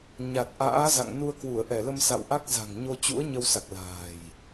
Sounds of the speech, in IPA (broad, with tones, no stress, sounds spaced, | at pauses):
ɲ a˨˩ t̚ ʔ a̰ː˧˥ z a̰˧˨ ŋ n u˧ ə̯ k w u˧˩ ə̯ ʔ ɛ˧˩ l ə˧ m s a̰˧˨ w ʔ a˦˥ k̚ z a̤˨˩ ŋ ɲ o˧ t͡ɕ ṵ˧˥ ə̯ ɲ ə˧ w s a˨˩ k̚ l a̤ː˨˩ j